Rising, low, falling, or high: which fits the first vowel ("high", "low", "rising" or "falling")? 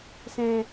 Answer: low